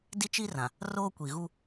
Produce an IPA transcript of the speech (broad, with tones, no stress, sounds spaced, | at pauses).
d i˦ t͡ʃ i˦ r ã˨ | r oː˦ kʷ i˨ ɣ u˦